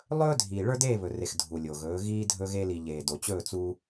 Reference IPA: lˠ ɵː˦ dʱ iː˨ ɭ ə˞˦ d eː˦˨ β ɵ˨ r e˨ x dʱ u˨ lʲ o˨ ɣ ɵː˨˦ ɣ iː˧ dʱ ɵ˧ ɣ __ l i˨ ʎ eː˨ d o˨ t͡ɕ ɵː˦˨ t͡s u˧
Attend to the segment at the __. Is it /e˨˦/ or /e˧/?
e˧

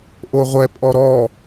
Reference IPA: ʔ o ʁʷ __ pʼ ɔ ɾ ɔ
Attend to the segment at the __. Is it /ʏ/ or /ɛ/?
ɛ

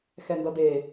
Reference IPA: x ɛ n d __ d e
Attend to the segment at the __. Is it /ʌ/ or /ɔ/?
ʌ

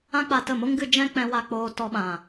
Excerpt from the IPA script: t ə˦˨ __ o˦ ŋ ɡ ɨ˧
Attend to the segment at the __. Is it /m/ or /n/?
m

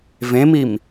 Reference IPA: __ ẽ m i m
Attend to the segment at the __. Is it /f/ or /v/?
v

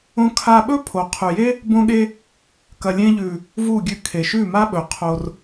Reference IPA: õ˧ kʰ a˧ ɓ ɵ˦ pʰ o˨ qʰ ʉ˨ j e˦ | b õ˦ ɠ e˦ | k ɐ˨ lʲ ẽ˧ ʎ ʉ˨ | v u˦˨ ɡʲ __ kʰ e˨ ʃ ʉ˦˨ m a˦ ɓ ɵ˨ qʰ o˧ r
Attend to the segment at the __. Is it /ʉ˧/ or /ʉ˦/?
ʉ˧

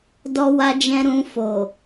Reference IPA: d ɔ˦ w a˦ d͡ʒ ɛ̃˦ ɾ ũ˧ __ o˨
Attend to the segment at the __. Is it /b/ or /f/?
f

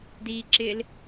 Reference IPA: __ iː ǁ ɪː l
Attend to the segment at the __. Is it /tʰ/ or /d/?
d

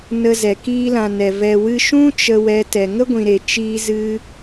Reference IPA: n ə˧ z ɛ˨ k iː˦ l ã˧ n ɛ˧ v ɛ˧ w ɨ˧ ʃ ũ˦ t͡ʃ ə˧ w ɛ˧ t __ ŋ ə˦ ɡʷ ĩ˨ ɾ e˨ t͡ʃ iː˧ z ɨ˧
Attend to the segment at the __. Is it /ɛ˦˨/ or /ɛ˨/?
ɛ˨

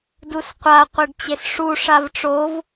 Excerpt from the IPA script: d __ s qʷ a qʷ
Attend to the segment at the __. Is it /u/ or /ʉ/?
u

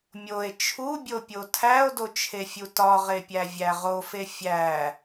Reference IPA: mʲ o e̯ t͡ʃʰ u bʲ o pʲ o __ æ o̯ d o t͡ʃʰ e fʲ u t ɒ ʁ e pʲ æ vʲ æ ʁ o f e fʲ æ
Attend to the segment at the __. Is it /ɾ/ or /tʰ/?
tʰ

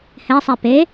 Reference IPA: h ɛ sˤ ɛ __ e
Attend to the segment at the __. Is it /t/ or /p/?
p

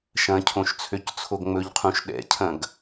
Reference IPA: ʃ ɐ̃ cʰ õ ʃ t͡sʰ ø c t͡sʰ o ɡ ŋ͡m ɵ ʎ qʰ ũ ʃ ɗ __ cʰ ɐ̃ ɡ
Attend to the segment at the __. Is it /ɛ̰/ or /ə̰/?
ɛ̰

